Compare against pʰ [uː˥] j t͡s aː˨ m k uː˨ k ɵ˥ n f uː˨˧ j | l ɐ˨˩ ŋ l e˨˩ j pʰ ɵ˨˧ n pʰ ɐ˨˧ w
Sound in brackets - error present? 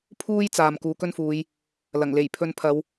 no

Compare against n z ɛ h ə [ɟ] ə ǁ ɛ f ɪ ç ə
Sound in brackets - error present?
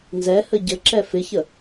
no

